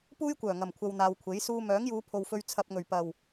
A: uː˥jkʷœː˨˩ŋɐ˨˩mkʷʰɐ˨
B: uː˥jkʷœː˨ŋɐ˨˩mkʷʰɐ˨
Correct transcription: A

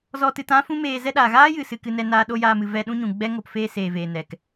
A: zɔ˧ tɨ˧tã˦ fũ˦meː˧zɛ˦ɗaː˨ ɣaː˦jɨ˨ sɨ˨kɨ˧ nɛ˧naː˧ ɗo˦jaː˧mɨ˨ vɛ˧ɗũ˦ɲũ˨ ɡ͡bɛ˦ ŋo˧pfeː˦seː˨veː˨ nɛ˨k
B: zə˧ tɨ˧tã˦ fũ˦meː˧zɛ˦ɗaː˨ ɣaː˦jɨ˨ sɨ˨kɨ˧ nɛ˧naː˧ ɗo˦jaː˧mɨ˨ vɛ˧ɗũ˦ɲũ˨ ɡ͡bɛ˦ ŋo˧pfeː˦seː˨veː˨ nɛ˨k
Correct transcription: A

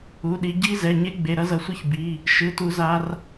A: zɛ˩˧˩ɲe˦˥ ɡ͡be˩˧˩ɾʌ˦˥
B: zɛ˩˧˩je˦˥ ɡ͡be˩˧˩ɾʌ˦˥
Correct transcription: A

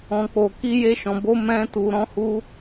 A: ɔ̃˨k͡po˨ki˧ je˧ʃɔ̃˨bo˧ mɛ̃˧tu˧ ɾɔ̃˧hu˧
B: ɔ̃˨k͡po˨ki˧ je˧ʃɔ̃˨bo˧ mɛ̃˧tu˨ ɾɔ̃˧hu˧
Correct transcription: B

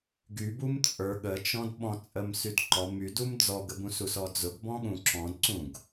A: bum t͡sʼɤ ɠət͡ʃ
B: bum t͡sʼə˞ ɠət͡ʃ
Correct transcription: B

